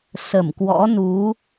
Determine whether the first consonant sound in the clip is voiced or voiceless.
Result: voiceless